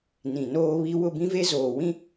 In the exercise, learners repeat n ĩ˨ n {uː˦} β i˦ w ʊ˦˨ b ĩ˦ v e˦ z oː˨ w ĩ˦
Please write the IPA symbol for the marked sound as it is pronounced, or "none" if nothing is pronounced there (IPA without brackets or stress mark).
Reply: oː˦